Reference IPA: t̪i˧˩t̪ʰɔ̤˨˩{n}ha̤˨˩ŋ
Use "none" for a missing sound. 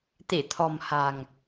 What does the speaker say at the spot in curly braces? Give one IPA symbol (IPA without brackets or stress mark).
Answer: m